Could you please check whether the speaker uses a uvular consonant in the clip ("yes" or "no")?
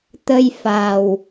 no